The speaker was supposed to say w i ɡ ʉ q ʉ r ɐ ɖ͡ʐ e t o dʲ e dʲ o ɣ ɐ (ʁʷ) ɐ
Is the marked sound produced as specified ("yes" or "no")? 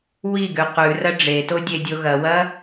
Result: no